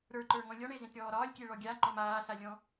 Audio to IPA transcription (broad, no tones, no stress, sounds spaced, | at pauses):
ɾ ə˞ ǃ ə˞ ŋ ɔ̃ lʲ ɔ ɳ e z ẽ t ɾʲ ɔː ɾ ɒː lʲ kʲ e ɭ ɔ ɡʲ a ŋ͡ǃ ɔ m aː s a lʲ ɔ̃